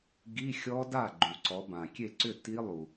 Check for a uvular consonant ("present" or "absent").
absent